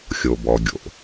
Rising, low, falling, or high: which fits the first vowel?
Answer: low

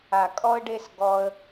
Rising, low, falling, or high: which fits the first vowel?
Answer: low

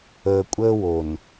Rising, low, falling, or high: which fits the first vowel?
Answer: low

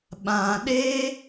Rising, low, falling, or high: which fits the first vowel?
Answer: low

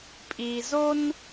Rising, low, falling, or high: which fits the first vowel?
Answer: low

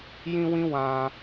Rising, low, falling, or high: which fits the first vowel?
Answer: high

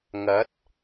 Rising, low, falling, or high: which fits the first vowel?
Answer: rising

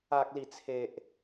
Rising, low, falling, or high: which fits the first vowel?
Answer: low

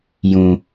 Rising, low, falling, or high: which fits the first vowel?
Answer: low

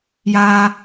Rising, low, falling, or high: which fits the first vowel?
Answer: low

